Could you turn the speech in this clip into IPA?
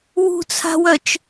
w ṳ t͡sʰ a̤ w œ t͡ʃ

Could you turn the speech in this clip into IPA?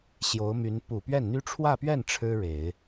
ɕ j o˧˥ ʊ̯ m y˧˥ n p u˨˩ p ɥ ɛ˥˩ n n̪ y˥ ʈ͡ʂʰ w ä˥˧ p ɥ ɛ˥˩ n ʈ͡ʂʰ ɻ̩˥ ɻ e˨˩˦ ɪ̯

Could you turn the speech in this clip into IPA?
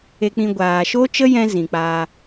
e˧ k͡p ĩ˧ ɡʷ aː˨ ʃ oː˦ t͡ʃ ə˦ j ɛ̃˦ z ĩ˨ k͡p aː˧

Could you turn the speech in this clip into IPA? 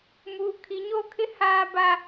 m uː˨ kʰ i˨˦ ɲ o˦ kʰ ɪ˦ h aː˦ b a˦

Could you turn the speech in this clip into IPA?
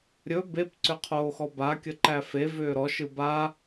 ɾʲ ɵ b e p ǀ ʏ qʰ oː x ɔ b a kʲ ə ǃ æ f e v ʏː ɾ ɔ ʃ ɯ b a

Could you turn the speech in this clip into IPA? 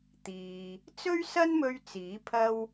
t̪ iː˨ | t͡s ɵ˥ ɥ s ɐ˥ n m ɵ˧ ɥ t͡s iː˨˥ pʰ ɐ˥ w

